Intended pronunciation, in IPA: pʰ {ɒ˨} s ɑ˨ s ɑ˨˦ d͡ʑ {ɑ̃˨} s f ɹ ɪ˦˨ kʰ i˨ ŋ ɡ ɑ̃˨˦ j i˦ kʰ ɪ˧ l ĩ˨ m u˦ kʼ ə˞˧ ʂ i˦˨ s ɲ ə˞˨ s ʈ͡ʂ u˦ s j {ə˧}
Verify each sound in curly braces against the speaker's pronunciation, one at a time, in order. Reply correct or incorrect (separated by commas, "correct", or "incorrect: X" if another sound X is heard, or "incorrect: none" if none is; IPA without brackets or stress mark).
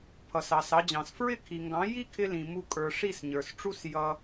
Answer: incorrect: ʌ˨, correct, incorrect: ʌ˧